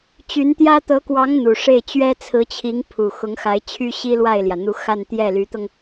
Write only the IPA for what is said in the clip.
t͡ɕ y˧˥ n t̪ j ä˥ t̪ ɤ˧˥ k w ɑ˧˥ ŋ n̪ u˨˩ ʂ e˥˩ ɪ̯ t͡ɕ ɥ ɛ˥ t͡sʰ ɹ̩˧˥ t͡ɕʰ i˧˥ ŋ pʰ u˨˩ x ʊ˧˥ ŋ x a˧˥ ɪ̯ t͡ɕʰ y˥ ɕ i˥ l w a˥˩ ɪ̯ l j ä˩ n̪ u˧˥ x a˥˧ n t̪ j ɛ˥˩ l y˧˥ t̪ ɤ˧ ŋ

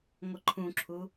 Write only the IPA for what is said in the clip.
ŋʷ ə ǃʰ ũ ǁʰ u

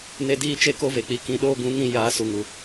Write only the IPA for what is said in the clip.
n e˦ d iː˦ t͡ʃ e˦ k o˦ v e˨ k͡p i˧ k ĩ˧ ɗ oː˦ ɡ ũ˨˦ ŋ ĩ˧ j aː˨˦ s u˨ ŋ u˨

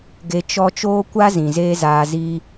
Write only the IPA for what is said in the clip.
ɡ e˧ t͡ʃ ɔ˦ t͡ʃ oː˦ kʷ a˦ z ĩ˨ z eː˦ z aː˧ z iː˦

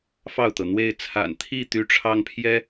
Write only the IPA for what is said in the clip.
f ɑ˥˩ ʊ̯ t̪ ɤ˩ n̪ w e˥˩ ɪ̯ t͡sʰ a̰˨˩ n t̪ʰ i˥˩ t̪ y˥ ʈ͡ʂʰ ɑ˥ ŋ pʰ j ɛ˥

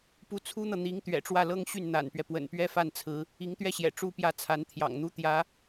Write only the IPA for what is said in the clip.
p u˧˥ t͡sʰ u˥ n̪ ɤ˨ n̪ i˧˥ ŋ t̪ ɥ ɛ̰˨˩ ʈ͡ʂ w ä˥˩ l ɤ˥ ŋ ɕ y˥˩ n n̪ a̰˨˩ n p ɥ ɛ˦ p w ə̰˨˩ n p ɥ ɛ˥ f a˥˩ n t͡sʰ ɹ̩˧˥ | i˧˥ ŋ t̪ ɥ ɛ˥˩ ɕ j ɛ̰˨˩ ʈ͡ʂ u˥ p j ä˥˩ t͡sʰ a˧˥ n t̪ʰ j ɑ̰˨˩ ŋ n̪ u˥ t̪ j ä˧˥

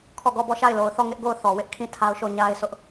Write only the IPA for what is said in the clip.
kʰ ɔ˦˨ ɡ ɔ˦˨ b ɔ˦˨ ʃ a˦˨ ɪ̯ l o˨ ʊ̯ θ ɔ˦˨ ŋ ɪ˦ ʔ ɡ o˦˨ ʊ̯ θ ɔ˨ w ɪ˦ ʔ kʰ ĩ˦˨ tʰ a˦ ʊ̯ ʃ o˦˨ ɲ a˦ ɪ̯ s ʊ˦ ʔ

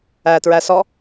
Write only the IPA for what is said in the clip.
æ t ɹ æ s ɔ

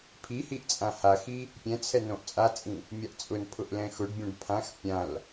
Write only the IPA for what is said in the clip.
pʰ i h i ʔ t͡sʼ ã h a x i | pʲ ɛ̃ t͡sʰ ɛ n õ ʔ t͡sʼ a t͡sʼ ĩ | mʲ a ʔ t͡sʼ ʊ n pʰ ʊ ʔ l ɛ̃ x ʊ ɖ bʲ õ ɖ pʰ ã x pʲ ã l

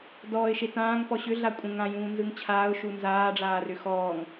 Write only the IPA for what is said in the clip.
d ɔː ɪ̯ ʃ e t ãː ŋ p ɔ ɕ ʏ ɮ a kʷʼ ə̃ ŋ ã j ũː n z ɯ ŋ t͡ɕʰ aː ʊ̯ ʃ u n z aː ɖ͡ʐ aː r ʏ x ɔː ŋ

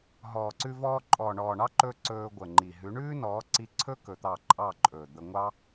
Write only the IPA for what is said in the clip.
ɦ ɔː˨ ǀ ʉ˧ v ɔː˧ ǃʼ ɔː˨ ɳ ɔː˨ ɳ ɑ˦ ǃ ɵː˧ ǀ ɵː˧ ɡʷ ə˨ ŋ͡ǃ i˨ ɦ ʉ˨˦ ɳ ʉː˦ n ɔː˨˦ ǀ i˧ ǀʰ ɵ˦ k ɵ˧ t̪ ɑ˦˨ ǃʼ ɑ˦˨ ǃʼ ɵː˨ d̪ ə˧ ŋʷ ɑ˦

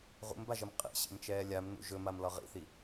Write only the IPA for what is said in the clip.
ʁ ṵ m b a ʒ ə m qʼ ḭ ɕ ḭ m t͡ʃ ɛː lʲ a m n ṵ ʒ ɵ m a m l ɒ ʁ ḭ θ i

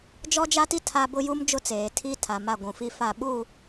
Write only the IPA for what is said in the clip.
d͡ʒ ɔ˦ d͡ʒ a˦ t i˦ tʰ a˦ b ʊ˦ j u˦ m d͡ʒ ʊ˦ t͡s eː˨ tʰ i˦ tʰ a˨ m a˦˨ ɡʷ ũ˨ f i˦ f a˦˨ ɓ u˦˨

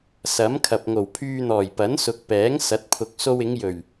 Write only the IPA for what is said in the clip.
s ɐ˨˥ m kʰ ɐ˨ p̚ ŋ o˨˩ w pʰ yː˧ n̪ ɔː˨˩ j p ɐ˨˥ n s ʊ˨ k̚ p ɛː˨˥ ŋ s ɐ˨˥ t̚ pʰ ʊ˨ k̚ s o˧ w ɪ˨˧ ŋ j ɵ˨˩ ɥ

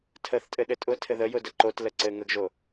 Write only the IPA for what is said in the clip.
tʰ ə θ tʼ ɘ ɗ ɘ tʼ ʊ tʰ ɘ ð ə j ʊ d ə ǃ o t l ə ǀ ɘ ŋ ə ɡ ʒ o

